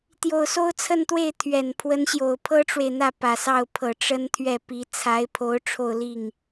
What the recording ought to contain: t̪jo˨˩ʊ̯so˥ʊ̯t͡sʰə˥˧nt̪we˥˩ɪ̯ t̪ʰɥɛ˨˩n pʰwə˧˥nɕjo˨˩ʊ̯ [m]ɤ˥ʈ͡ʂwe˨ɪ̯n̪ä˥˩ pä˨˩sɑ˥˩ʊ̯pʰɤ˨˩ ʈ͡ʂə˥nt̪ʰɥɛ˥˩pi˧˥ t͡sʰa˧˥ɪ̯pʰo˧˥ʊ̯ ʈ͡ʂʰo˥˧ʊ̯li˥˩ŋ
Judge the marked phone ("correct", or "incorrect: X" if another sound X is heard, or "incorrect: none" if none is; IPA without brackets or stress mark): incorrect: pʰ